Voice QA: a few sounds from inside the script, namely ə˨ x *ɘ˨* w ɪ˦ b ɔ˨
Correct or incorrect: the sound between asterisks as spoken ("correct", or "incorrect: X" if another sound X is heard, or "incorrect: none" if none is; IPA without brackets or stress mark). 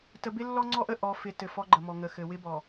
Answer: correct